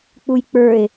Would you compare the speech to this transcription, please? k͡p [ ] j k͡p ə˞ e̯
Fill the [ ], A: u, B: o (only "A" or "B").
A